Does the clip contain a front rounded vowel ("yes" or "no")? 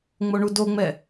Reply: no